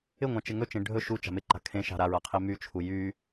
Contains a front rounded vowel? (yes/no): yes